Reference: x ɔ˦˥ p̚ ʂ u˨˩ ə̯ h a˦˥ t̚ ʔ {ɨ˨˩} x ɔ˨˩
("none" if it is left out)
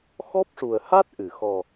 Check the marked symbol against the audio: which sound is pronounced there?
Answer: ɨ˨˩˨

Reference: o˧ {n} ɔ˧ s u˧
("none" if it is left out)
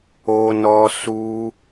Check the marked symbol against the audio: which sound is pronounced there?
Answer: n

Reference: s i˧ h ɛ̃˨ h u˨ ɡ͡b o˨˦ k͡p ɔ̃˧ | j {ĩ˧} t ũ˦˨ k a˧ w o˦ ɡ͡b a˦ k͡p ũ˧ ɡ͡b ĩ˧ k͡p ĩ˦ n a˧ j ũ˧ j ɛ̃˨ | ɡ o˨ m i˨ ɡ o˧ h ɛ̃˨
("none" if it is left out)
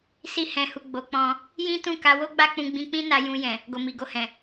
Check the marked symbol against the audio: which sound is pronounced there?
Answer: ĩ˦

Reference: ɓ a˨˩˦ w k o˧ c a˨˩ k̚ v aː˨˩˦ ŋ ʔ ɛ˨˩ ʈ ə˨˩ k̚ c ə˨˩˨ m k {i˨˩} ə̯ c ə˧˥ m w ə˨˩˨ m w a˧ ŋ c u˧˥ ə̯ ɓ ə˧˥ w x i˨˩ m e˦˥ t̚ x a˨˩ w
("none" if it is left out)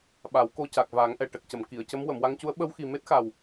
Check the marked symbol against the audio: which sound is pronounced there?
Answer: i˨˩˨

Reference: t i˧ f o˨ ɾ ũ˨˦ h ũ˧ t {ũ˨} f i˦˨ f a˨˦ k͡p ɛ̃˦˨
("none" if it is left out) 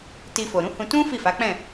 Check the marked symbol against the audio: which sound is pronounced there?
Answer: ũ˦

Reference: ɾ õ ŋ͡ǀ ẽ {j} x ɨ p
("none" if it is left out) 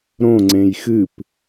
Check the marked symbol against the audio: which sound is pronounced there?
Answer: j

